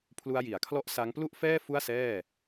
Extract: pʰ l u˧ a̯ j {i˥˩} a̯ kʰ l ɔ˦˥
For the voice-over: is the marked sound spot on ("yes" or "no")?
no